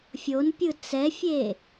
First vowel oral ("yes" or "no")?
yes